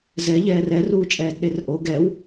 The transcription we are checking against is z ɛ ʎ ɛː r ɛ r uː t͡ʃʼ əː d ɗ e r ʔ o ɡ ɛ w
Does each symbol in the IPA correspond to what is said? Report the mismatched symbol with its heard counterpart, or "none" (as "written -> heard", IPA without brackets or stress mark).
əː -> ɛː